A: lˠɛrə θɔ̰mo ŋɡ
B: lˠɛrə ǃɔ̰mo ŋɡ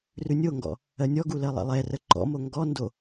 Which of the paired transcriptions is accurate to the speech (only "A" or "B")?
B